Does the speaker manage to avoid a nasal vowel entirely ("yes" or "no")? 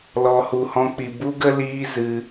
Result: no